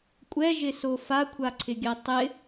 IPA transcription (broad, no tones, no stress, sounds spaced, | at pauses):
kʷʼ ɛ ʒ ɪ s o f a kʷʰ a ǀʰ ɪ ɡʲ a tˤ ɪ